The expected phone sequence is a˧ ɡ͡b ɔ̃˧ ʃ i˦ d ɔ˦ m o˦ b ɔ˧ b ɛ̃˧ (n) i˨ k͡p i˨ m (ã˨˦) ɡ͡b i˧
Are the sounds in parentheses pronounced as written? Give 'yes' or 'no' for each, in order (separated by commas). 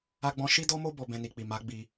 yes, no